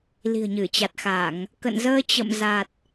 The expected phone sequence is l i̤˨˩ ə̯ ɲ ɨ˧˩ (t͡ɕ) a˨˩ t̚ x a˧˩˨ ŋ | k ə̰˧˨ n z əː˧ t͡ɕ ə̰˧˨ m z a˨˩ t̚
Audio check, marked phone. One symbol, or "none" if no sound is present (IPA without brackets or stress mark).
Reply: t͡ɕ